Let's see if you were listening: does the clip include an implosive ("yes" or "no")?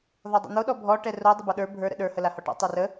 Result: yes